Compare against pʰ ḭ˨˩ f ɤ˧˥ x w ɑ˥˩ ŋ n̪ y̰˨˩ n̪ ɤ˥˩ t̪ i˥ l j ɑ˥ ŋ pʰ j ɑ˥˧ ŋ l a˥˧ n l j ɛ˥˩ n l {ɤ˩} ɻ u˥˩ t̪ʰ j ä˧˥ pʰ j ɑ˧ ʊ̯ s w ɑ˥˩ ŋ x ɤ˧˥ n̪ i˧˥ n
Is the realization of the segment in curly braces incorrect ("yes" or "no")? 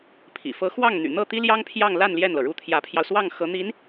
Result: no